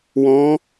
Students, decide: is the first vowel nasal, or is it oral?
nasal